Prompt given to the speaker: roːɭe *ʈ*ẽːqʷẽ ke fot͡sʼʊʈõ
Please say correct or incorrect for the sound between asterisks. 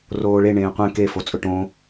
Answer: incorrect